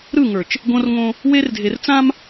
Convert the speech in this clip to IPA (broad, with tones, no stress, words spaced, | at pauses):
ɾɯ˦˨ŋə˞˨t͡ʃ | ɡõ˦rŋõ˦ | we˦rdʱe˨rt͡sã˦m